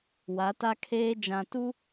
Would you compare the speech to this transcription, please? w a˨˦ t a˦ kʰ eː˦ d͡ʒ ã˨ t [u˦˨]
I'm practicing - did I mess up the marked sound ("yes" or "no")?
yes